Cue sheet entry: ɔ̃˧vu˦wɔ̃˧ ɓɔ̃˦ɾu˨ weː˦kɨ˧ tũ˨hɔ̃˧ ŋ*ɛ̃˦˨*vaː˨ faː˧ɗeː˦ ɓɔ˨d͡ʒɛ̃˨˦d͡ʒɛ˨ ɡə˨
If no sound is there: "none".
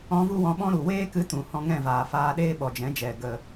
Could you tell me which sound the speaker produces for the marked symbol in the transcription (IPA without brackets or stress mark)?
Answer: ɛ̃˦˨